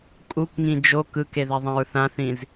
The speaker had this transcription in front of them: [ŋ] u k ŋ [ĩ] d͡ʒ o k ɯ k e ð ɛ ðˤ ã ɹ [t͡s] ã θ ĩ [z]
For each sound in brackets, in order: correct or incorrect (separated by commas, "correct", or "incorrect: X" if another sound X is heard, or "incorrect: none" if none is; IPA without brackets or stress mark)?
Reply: incorrect: kʼ, correct, incorrect: θ, correct